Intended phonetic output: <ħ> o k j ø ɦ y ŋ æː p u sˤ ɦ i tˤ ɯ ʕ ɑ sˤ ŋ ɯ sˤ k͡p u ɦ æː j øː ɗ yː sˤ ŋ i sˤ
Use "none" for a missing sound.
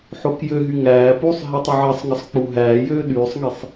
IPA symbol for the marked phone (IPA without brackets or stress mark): ħ